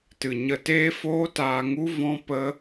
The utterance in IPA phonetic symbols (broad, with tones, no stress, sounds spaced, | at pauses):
t ɨ˨ ɲ ə˧ t eː˦ f oː˦ t aː˧ ŋ u˦ v ɔ̃˦ p ə˦